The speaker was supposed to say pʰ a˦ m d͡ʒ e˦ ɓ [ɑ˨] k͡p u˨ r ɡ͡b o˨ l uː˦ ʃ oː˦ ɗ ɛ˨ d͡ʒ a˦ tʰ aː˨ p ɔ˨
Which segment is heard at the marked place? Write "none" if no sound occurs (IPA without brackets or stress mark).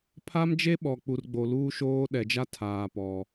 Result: ɔ˨